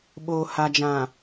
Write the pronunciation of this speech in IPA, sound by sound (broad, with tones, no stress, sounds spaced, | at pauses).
ɓ oː˨ h a˨ d͡ʒ ã˨